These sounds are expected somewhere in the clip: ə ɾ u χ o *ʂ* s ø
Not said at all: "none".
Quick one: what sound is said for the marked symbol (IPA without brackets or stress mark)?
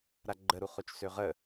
t͡ʃ